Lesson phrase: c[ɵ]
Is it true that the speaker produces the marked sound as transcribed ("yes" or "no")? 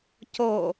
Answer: no